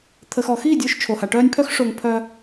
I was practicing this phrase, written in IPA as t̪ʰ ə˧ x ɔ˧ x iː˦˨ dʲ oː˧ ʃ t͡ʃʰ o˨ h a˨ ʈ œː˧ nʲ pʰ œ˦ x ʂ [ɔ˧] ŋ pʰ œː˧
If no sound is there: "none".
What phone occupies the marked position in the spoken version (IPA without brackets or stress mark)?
o˧